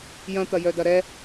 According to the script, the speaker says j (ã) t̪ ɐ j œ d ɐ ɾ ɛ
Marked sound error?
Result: yes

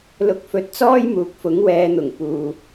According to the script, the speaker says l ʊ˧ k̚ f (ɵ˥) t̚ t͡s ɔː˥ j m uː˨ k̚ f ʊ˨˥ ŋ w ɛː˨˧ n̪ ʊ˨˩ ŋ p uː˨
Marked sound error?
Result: yes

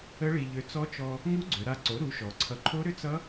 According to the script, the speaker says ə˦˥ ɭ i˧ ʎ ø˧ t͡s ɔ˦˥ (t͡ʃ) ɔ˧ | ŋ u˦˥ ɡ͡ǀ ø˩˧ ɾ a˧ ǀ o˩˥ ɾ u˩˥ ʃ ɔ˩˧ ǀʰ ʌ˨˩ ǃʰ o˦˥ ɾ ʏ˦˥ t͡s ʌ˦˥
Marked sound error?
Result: no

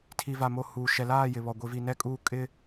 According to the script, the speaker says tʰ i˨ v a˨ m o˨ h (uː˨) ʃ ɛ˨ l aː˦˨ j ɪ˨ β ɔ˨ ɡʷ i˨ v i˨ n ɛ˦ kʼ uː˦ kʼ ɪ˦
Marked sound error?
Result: no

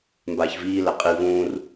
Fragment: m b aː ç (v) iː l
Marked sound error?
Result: no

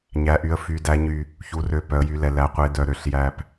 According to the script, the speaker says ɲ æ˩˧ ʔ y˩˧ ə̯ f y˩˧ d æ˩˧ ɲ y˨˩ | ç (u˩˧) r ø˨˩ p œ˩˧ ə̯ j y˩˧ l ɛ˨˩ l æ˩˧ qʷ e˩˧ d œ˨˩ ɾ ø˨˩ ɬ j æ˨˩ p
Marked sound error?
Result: no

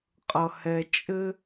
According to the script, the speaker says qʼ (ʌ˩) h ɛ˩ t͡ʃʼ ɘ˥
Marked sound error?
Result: no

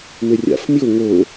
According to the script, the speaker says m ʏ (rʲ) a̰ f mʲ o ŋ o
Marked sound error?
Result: no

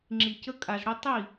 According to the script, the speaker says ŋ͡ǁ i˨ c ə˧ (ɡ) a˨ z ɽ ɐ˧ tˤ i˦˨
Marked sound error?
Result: yes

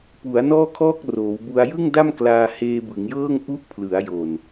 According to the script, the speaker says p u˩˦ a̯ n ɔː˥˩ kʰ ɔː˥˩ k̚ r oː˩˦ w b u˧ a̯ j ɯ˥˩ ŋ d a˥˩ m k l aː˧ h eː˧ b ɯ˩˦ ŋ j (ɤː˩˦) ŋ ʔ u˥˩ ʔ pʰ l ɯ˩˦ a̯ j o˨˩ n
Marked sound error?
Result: yes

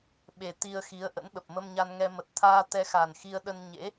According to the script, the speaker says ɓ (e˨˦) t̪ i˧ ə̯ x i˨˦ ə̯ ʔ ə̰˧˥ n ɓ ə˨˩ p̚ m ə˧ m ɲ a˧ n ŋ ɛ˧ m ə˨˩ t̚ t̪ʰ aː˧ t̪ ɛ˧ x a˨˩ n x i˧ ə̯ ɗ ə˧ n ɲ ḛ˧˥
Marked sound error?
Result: yes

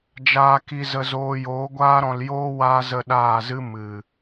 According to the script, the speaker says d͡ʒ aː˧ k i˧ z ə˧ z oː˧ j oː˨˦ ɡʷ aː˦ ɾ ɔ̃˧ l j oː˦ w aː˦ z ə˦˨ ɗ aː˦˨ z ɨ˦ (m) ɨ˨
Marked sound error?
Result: no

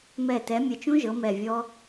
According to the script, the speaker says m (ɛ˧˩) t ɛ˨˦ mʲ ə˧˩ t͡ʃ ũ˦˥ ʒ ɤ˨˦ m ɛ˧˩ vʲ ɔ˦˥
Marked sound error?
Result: no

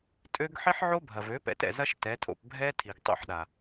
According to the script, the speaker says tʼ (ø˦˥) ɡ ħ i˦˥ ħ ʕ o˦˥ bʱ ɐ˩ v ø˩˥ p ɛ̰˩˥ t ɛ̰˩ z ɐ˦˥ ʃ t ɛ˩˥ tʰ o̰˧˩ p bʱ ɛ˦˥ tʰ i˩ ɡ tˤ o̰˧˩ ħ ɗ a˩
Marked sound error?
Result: no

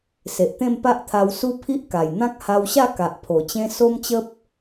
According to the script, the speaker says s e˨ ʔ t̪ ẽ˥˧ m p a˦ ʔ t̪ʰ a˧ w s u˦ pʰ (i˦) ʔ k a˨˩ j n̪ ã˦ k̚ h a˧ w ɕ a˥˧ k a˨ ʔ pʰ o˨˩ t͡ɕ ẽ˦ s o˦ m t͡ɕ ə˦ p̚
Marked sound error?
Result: no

